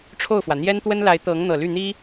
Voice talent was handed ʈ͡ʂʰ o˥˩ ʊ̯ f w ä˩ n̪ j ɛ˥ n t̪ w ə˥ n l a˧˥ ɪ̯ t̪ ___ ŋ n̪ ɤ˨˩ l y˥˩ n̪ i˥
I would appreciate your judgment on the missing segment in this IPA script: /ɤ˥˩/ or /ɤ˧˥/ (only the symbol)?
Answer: ɤ˧˥